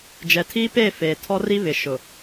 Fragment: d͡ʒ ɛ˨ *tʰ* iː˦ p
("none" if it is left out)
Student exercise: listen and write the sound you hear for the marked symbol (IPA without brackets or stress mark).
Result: tʰ